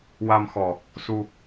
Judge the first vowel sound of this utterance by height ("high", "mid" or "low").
low